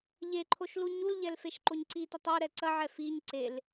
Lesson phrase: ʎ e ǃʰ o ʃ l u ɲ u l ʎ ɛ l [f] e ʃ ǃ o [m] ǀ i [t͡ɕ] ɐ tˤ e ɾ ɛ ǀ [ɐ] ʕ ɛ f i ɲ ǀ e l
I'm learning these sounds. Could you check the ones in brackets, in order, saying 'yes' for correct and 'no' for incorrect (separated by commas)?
yes, no, no, yes